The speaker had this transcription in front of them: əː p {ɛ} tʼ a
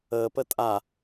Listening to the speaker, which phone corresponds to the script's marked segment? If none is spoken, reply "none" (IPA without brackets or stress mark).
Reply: ə